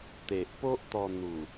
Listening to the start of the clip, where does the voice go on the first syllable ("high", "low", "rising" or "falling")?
low